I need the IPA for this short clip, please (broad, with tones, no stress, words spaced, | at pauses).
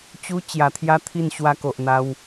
t͡ɕu˦ t͡ɕja˧t̪ʰja˥˧t̪ʰi˥˧n ɕwa˧ko˨ʔn̪a˧w